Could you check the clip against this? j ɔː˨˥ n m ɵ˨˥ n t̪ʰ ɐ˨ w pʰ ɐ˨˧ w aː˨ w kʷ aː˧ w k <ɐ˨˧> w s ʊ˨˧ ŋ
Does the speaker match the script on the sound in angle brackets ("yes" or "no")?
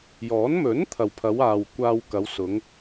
yes